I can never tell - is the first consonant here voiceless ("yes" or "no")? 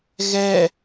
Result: no